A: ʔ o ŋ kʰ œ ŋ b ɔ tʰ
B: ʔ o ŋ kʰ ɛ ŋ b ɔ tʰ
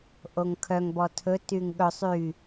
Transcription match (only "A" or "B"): A